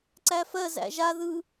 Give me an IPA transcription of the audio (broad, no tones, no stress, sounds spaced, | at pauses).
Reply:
ǀ æ f ɜ z æ̰ ʒ a ð ɯ